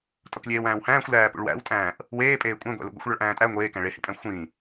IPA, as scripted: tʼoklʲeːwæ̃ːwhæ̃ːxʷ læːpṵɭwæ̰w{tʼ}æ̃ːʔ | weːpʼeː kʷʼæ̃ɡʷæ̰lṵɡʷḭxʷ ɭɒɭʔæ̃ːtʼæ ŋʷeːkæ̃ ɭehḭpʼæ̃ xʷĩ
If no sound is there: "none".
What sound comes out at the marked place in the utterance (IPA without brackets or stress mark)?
tʼ